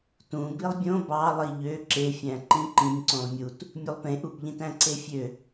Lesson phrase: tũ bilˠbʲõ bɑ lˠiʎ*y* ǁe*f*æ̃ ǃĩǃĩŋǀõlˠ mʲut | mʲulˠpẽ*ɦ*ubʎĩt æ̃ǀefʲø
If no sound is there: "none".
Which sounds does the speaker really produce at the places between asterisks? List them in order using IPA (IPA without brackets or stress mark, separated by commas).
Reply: ø, fʲ, ʔ